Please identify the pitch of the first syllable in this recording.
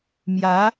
rising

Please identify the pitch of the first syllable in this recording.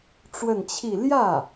falling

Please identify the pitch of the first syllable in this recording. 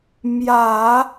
low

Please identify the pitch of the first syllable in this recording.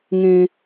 high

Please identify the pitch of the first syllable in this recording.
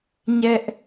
high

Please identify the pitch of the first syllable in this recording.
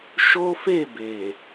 high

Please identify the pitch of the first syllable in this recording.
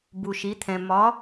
low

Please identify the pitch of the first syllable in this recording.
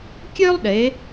high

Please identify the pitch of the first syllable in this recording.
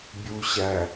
low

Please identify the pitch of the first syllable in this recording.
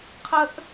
high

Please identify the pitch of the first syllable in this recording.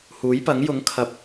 rising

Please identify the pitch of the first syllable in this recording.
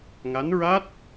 rising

